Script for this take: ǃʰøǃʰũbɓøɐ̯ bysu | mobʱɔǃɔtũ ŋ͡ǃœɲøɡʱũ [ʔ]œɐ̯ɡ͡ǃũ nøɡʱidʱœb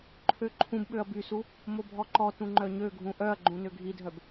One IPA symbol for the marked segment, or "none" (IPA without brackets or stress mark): ʔ